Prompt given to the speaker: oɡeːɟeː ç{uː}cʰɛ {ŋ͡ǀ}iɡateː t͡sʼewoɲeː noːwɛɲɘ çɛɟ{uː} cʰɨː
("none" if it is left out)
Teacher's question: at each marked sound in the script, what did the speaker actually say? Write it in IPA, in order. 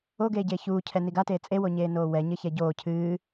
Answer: uː, n, oː

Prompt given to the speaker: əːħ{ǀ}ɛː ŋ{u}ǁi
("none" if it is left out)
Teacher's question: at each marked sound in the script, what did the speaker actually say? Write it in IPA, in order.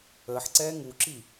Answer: ǀ, u

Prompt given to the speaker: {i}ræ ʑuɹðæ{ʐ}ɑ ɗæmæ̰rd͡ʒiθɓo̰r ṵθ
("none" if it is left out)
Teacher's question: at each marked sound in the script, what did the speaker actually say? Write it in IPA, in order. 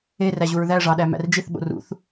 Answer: e, ʐ

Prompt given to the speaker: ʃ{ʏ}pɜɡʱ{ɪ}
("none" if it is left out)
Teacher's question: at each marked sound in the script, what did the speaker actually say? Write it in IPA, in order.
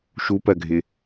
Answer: u, ɪ

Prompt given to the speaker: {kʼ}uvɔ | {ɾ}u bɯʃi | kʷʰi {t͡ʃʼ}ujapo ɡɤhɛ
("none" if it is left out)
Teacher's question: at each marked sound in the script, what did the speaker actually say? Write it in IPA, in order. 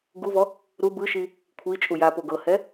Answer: ɡ, ɾ, t͡ʃʼ

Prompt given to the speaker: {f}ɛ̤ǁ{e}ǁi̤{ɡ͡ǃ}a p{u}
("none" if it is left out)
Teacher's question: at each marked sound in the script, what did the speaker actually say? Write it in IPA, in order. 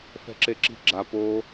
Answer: f, e, ɡ͡ǁ, o

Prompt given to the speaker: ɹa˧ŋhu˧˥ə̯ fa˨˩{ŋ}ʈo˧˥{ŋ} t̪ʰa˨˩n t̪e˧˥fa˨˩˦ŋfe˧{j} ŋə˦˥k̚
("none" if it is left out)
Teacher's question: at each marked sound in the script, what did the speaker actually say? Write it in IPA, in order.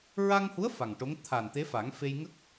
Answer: ŋ, ŋ, j

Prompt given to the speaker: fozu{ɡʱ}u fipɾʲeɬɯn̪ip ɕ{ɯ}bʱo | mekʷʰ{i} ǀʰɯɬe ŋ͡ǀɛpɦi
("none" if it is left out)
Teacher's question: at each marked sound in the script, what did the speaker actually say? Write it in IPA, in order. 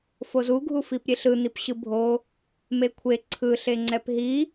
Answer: ɡʱ, ɯ, e

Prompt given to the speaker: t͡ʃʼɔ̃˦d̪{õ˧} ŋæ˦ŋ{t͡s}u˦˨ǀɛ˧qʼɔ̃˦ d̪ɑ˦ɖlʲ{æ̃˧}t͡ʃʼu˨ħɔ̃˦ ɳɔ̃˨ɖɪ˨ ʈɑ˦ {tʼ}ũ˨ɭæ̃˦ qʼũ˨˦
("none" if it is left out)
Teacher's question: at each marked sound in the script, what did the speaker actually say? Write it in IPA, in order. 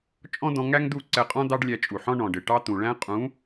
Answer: ɔ̃˧, d̪, æ˧, t̪

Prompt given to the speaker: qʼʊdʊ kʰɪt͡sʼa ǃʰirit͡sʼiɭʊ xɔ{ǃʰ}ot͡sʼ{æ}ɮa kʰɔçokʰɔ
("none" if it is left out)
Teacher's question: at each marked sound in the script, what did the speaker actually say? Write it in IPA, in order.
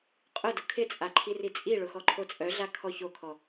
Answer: ǃʰ, œ

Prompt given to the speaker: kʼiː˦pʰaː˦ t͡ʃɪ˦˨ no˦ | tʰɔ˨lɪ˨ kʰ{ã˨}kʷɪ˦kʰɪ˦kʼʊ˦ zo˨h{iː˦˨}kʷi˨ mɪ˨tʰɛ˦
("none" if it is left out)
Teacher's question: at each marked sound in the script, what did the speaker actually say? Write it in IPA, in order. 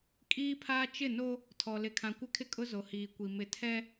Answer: ã˨, iː˨

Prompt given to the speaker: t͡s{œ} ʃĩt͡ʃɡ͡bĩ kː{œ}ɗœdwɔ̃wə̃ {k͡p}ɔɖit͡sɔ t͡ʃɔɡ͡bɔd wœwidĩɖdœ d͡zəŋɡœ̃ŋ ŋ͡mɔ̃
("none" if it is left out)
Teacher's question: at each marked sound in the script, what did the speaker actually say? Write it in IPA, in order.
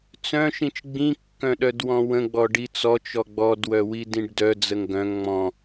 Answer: œ̃, œ̃, ɡ͡b

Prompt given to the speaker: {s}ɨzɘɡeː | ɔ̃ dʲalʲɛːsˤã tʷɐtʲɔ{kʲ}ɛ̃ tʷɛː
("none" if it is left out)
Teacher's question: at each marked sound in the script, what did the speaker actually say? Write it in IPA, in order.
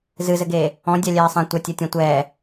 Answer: z, tʲ

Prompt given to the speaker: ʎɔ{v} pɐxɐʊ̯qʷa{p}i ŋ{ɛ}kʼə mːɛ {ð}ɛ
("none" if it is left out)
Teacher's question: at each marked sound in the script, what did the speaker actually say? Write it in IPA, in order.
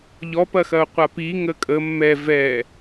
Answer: none, p, ə, v

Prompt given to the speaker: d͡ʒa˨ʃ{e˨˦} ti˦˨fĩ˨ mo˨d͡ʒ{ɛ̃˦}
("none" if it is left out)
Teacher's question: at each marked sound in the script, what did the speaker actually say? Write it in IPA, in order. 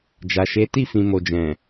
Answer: e˨˦, ɛ̃˨

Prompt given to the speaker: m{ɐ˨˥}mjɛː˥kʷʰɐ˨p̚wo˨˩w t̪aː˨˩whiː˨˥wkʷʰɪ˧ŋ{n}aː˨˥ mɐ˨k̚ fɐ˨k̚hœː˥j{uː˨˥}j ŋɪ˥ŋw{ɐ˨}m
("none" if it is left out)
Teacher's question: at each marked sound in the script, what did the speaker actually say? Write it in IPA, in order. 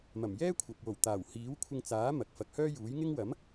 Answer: ɐ˨˩, t͡s, uː˨˥, ɐ˨˥

